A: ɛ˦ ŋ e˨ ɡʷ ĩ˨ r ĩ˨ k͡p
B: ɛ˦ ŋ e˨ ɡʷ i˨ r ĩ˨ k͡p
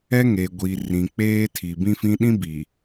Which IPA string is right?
B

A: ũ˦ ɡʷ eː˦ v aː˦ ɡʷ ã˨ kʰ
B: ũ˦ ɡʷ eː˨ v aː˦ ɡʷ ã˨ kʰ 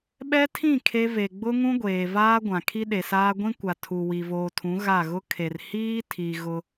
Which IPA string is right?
B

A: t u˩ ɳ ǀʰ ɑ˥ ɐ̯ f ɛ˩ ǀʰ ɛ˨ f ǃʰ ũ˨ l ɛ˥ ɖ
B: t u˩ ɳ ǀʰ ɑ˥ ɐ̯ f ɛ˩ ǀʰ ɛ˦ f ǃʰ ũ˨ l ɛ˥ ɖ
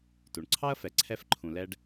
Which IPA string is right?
B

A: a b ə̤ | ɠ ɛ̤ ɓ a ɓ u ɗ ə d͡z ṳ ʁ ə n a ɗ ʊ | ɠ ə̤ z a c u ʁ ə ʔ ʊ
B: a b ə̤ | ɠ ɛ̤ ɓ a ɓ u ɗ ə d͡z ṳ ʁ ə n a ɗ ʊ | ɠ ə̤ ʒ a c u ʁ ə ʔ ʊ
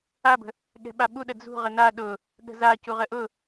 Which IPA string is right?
A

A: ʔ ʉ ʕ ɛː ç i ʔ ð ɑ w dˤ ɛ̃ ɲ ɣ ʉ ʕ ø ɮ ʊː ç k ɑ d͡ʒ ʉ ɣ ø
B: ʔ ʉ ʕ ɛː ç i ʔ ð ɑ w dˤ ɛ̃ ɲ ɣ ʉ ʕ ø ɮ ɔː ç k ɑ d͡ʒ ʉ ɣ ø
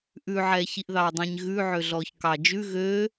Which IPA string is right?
B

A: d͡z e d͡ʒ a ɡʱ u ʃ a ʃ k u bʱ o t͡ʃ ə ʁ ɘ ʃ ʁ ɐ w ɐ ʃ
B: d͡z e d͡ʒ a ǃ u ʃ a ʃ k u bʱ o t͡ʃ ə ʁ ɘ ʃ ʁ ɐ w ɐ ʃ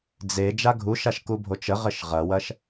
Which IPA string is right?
A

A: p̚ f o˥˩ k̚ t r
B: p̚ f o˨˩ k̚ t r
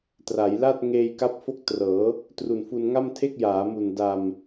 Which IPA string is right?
A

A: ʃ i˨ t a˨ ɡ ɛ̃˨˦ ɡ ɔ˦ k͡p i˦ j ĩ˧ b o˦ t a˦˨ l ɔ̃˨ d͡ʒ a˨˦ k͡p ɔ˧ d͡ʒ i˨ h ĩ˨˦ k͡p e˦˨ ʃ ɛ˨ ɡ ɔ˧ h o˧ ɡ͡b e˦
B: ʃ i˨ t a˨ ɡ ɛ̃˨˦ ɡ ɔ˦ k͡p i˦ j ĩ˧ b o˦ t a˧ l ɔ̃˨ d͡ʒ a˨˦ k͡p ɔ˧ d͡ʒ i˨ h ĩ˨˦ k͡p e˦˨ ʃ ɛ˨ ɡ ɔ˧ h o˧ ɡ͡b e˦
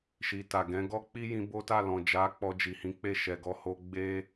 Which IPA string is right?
A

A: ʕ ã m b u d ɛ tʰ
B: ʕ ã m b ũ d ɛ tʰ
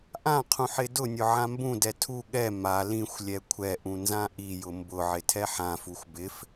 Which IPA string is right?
B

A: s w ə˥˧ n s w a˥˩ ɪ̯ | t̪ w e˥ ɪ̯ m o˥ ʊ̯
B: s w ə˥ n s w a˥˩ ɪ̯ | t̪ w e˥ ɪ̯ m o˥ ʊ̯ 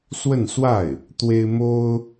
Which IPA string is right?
A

